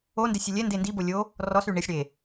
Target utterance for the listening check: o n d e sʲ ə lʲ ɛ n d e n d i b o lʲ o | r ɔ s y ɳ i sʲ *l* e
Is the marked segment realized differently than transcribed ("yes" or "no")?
yes